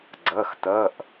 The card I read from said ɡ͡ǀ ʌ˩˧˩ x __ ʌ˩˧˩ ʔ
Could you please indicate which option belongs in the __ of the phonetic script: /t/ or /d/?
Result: t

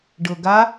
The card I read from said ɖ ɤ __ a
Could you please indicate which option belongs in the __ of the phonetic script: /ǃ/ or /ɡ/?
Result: ɡ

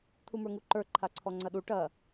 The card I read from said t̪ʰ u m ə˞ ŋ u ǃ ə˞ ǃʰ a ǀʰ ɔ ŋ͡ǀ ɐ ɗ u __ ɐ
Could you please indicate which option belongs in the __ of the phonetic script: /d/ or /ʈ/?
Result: ʈ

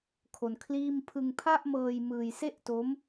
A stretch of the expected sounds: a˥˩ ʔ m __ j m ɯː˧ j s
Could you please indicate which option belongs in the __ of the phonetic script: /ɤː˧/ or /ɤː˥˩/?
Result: ɤː˧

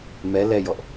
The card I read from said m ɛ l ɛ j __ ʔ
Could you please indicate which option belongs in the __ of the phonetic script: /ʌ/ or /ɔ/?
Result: ɔ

